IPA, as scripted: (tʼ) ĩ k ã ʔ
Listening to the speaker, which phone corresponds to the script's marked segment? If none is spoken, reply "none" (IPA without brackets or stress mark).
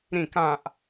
ɾ